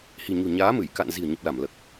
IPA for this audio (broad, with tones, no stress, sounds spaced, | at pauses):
h i̤˨˩ ɲ o̤˨˩ ɲ aː˨˦ m ɨ˧˩ j k a̰˧˨ n z i̤˨˩ ə̯ ɲ ə˨˩ p̚ l a˧˩ m l əː˨˩ k̚